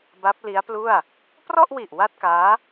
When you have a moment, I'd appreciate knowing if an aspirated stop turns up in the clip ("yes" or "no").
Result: no